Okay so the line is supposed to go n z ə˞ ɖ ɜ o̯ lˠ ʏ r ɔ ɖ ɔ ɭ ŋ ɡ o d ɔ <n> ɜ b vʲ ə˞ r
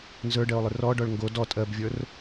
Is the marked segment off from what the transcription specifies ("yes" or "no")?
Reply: yes